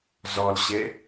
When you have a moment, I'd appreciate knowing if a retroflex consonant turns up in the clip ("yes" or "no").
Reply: no